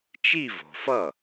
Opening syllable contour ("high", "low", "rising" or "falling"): falling